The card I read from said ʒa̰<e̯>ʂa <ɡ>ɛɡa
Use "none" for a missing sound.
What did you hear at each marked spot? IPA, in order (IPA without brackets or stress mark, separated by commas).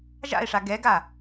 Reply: e̯, ɡ